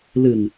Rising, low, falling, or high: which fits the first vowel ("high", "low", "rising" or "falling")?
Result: low